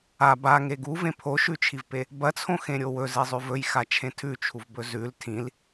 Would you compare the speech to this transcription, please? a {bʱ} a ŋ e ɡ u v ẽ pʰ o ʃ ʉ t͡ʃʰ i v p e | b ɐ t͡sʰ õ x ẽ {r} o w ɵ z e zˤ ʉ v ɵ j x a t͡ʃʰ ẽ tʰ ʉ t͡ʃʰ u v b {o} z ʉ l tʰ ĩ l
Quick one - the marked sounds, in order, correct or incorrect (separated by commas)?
incorrect, incorrect, incorrect